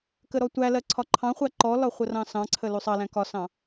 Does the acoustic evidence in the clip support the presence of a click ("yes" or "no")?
yes